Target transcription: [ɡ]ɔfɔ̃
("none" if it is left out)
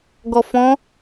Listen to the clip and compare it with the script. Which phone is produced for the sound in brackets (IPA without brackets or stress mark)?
ɡ